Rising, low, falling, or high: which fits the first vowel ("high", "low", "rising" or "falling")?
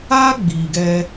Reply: high